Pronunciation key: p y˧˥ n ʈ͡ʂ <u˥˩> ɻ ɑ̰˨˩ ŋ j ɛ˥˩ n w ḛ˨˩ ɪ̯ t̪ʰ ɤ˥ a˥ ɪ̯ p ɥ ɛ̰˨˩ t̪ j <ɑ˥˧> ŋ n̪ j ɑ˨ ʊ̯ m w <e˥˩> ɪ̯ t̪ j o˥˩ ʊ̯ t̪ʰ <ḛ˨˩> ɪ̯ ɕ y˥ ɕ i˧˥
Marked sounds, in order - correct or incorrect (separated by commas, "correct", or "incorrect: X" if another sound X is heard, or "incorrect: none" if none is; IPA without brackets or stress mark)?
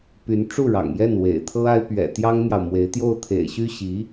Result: correct, incorrect: ɑ˥, incorrect: e˧˥, correct